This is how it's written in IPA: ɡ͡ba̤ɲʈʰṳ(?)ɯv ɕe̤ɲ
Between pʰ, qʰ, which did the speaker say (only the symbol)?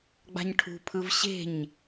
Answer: pʰ